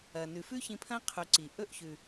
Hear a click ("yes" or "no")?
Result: yes